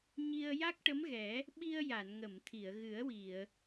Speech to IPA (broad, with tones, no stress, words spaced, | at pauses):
ɲi˧ə̯ja˦˥k̚ ʈə˧˥mɣɛ˨˩˦ | ɓi˧ə̯ja˨˩˨nŋə˨˩˨mt̪ʰi˨˩˨ə̯ ɣɨ˨˩˦ə̯wi˨˩˨ə̯